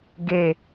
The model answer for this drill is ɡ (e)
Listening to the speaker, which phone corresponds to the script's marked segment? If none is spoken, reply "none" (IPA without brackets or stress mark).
e